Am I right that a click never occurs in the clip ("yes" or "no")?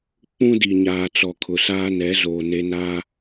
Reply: yes